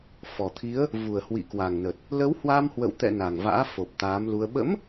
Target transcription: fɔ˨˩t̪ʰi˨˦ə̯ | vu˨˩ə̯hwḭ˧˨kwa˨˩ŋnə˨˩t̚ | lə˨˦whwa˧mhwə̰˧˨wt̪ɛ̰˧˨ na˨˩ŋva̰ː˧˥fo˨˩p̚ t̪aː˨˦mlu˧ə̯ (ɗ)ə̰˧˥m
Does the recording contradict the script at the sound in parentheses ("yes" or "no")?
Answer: yes